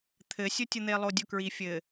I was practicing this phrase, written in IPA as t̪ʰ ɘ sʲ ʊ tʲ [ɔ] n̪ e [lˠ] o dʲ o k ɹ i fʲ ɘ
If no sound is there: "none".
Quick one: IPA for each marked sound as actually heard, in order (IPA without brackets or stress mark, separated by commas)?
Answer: ʊ, lˠ